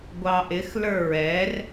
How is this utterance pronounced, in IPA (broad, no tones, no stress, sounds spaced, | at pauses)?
ɡʷ ɑ ʔ ɪ x l ə˞ ɹ ɛ r